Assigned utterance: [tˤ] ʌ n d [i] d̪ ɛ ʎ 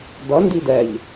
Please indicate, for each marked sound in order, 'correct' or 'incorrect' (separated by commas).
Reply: incorrect, correct